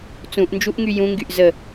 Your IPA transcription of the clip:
t͡s ũ ʔ n d͡ʒ u ʔ ŋ y j ũ ŋ ɡ y ʔ z ə

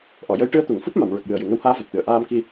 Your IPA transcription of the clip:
ʔ ɔ˨˩˨ j ə˧˥ j ʈ ɨ˧˥ ə̯ t̪ u˨˩˨ ŋ f u˦˥ p̚ m a˨˩˨ m ɹ ə˨˩ k̚ j ɨ˨˩ ə̯ j ɨ˨˩˨ ŋ ə˧˥ w h aː˧˥ v a˨˩ t̚ t̪ ɨ˨˩˨ ə̯ ʔ aː˧ m k i˧

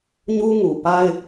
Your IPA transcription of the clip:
ɲ u˦ ŋ u˨ p a˦ ɪ̯

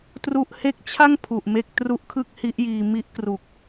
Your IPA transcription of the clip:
t r u˦˥ ʔ h e˦˥ k̚ t͡ɕʰ a˥˩ ŋ pʰ u˨˩ ʔ m e˥˩ k̚ t r u˦˥ ʔ kʰ ɯ˥˩ k̚ h i˦˥ ʔ j iː˧ m i˦˥ ʔ k r u˨˩ k̚

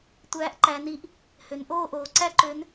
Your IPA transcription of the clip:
tʷ æː˨˥ ʔ ǃ æ˩˧ n i˨˥ ʔ | h ø˩˧ n ʔ oː˥˨ ʔ oː˩˧ ǀ æ˥ ǃ ø˨˥ n

